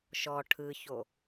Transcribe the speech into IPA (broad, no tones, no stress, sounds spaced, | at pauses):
ʃ ɔ ʈʰ ɯ ç o